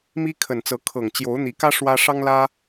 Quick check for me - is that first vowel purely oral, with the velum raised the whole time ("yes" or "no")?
yes